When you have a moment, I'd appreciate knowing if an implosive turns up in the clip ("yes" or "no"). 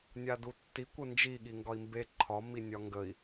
yes